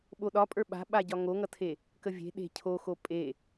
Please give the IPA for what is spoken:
ɓ o ɗ ɒ pʼ ə˞ ɓ a̤ ɓ a ɟ ɒ ŋ o ŋ ʌ tʰ e | k ə vʲ e̤ ɗ e̤ cʰ o x o pʼ e

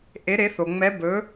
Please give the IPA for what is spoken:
ʔ e˧˥ ɾ e˧˥ θ o˧ ŋ͡m ɛ˧˥ b ɵ˧˥

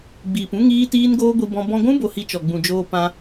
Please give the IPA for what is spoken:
ɡ͡b iː˨ p ũ˦ ŋ iː˦ t iː˦ n ɡ oː˦ ɡʷ i˧ b ɔ̃˧ b ɔ̃˧ ɡʷ ũ˦ b o˧ h i˧ t͡ʃ ɔ˨ ɡ͡b ũ˨ d͡ʒ oː˧ p ã˧

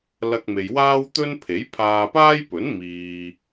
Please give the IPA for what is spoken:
l ɐ˧ k̚ m e˨ j w aː˥ w t̪ ɵ˥ n pʰ e˨˥ j pʰ aː˧ p aː˥ j p ɵ˨˥ n m iː˨

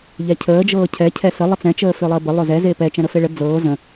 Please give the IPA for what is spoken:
ʎ ɛ cʰ əː d͡ʒ ɤː cʰ ɛ cʰ ɛ s ə lˠ ə t͡s ɛ̃ t͡ʃ əː f ø lˠ əː b ə lˠ ø z ɛ z e p ɛ t͡ʃ ɛ̃ ɾ ə f e ɭ ə d͡z ɤː z ə̃

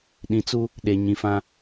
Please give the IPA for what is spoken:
ɗ ĩ˨ t͡s u˦ | ɗ e˨ ɲ ĩ˨ f ã˦

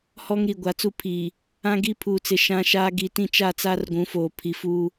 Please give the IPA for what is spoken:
h ɔ˦ ŋ ɾ i˨ ɡʷ a˨ t͡s u˦ pʰ iː˨ | ã˦ ɡ i˦ pʰ uː˨ t͡s ɪ˨ ʃ ã˦ ʃ aː˦ ɡ i˨ t ĩ˦˨ t͡ʃ a˦˨ t͡s a˦ r ɡʷ ũ˨˦ f oː˨ pʰ i˨ f uː˦

